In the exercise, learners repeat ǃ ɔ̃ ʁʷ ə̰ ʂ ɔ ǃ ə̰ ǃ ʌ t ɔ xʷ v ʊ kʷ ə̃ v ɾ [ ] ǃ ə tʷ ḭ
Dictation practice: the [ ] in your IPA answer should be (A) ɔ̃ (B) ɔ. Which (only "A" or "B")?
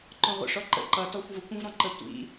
A